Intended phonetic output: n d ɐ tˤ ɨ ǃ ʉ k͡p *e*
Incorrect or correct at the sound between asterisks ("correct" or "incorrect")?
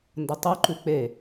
correct